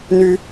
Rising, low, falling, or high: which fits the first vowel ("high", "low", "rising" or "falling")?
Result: high